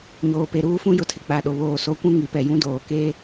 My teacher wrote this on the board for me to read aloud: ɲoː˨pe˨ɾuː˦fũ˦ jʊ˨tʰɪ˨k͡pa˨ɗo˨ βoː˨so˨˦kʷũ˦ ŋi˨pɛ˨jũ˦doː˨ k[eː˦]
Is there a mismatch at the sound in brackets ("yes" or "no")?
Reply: no